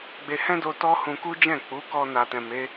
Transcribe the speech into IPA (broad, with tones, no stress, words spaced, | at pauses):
ɡ͡be˧hɛ̃˦ do˦ tɔ˦ hũ˧ku˦d͡ʒɛ̃˦˨ k͡pu˨˦kɔ˧ na˨tɛ̃˨ me˨˦